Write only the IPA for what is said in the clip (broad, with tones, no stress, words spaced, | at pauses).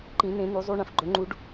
ǃĩ˧˥nẽ˧˥nu˧˥zˤu˥ ɳɐ̃˩fɡ͡ǃɵ˧˥ŋ͡ǃu˧˥ɖ